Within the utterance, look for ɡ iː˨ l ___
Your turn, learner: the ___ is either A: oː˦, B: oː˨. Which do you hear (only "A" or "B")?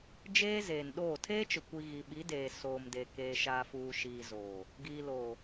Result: B